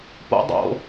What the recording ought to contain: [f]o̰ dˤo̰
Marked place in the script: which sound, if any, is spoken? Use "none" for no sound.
p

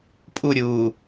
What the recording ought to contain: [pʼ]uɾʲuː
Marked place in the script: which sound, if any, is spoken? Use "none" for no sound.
pʼ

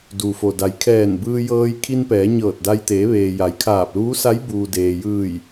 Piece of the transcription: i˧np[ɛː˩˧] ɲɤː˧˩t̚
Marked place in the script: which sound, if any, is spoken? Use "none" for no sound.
ɛː˩˧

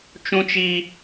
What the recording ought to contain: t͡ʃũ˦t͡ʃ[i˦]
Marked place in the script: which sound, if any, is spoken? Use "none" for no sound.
i˦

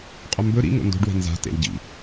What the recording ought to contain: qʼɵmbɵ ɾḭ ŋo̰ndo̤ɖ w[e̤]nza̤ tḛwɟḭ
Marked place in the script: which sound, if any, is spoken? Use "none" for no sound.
e̤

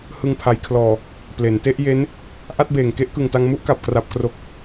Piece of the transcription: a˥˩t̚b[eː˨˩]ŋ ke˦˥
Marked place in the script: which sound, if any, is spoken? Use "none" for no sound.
eː˨˩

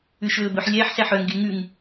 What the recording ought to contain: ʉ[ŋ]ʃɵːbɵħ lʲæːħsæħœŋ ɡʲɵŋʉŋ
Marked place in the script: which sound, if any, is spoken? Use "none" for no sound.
none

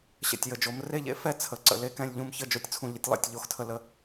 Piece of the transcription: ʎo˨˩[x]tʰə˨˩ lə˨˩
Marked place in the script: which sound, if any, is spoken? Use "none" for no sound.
x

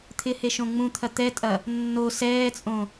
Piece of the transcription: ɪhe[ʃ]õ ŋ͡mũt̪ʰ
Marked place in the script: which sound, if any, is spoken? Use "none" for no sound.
ʃ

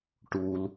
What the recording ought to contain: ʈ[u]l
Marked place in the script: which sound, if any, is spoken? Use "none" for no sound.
u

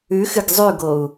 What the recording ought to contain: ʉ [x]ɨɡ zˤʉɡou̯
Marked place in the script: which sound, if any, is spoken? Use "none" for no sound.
x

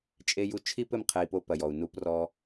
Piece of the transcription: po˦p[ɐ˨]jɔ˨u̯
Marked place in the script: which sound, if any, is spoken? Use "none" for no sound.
ɐ˨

